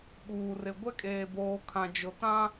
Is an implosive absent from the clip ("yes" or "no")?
no